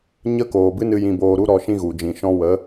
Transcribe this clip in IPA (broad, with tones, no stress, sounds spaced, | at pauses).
ɲ ə˦ k oː˨ b ɨ˦ n ɨ˧ j ĩ˧ b oː˧ ɾ u˦ ɾ ɔ˧ ʃ ĩ˦ ɣ u˨ d͡ʒ ĩ˨ ʃ ɔ̃˦ w ə˨˦